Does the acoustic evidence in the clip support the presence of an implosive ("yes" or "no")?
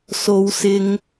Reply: no